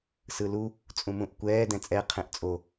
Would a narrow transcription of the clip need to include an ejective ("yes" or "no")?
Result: yes